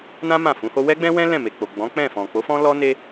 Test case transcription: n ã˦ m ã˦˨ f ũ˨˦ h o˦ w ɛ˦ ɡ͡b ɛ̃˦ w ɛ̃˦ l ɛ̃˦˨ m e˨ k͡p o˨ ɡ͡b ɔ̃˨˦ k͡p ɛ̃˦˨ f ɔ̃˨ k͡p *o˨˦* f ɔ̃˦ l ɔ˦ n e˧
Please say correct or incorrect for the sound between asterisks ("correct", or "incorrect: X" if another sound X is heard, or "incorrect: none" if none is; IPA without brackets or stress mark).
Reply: correct